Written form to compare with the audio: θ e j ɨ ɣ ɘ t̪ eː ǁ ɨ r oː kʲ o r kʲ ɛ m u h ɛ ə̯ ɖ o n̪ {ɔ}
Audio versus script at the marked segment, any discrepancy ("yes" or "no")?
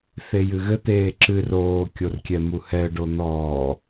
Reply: yes